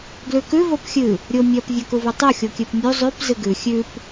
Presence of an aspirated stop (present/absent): absent